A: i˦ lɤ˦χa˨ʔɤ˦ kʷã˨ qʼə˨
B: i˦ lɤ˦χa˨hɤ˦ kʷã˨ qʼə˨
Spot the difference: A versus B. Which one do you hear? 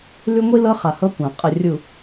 B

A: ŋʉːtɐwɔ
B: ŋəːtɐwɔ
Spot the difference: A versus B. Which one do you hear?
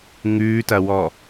A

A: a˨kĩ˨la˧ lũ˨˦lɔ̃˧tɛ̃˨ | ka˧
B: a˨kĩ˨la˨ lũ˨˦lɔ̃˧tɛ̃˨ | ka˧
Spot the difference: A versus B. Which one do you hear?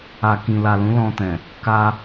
B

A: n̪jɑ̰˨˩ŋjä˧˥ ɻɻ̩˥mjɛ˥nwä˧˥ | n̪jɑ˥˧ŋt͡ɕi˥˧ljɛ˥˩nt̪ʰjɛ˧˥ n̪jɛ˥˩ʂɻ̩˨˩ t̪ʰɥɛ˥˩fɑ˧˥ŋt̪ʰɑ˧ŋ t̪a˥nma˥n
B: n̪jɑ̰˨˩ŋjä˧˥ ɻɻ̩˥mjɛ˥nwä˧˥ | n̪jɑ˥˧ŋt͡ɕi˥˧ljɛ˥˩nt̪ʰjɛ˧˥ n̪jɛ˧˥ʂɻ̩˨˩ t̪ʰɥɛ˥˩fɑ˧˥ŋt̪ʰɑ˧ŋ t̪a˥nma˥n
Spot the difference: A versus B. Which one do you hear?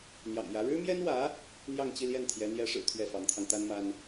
B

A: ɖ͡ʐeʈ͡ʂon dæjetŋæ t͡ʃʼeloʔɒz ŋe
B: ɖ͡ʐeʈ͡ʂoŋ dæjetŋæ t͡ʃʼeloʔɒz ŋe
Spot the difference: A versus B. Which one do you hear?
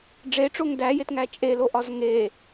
B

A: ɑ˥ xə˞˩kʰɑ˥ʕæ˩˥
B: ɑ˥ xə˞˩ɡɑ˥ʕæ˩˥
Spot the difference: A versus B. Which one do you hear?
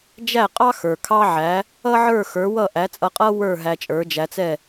A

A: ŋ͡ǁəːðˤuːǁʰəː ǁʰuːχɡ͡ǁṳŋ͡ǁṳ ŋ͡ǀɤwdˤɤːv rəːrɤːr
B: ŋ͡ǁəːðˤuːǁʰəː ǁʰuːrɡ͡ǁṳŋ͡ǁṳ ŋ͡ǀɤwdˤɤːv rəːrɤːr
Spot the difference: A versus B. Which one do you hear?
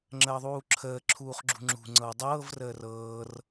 A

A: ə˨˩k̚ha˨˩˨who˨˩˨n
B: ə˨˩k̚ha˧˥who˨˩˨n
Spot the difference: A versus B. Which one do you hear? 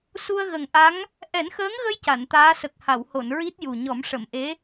A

